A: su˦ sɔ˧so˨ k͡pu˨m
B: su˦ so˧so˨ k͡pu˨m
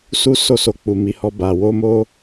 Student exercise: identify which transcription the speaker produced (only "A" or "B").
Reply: B